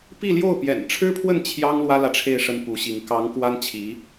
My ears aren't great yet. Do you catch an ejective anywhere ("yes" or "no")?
no